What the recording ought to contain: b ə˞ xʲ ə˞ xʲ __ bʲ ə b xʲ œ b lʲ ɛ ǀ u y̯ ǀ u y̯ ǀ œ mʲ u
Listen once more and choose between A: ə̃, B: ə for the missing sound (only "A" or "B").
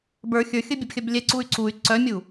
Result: B